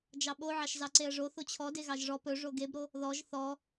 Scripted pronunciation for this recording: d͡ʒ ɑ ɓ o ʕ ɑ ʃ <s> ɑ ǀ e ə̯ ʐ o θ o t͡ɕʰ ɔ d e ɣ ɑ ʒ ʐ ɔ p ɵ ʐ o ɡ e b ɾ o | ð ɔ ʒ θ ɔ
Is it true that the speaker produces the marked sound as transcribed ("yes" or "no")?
no